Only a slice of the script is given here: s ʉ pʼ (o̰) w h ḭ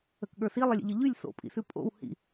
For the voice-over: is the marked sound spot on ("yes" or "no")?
yes